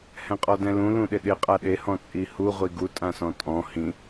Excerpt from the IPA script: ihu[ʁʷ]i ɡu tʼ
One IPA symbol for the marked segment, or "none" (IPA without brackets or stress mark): ʁʷ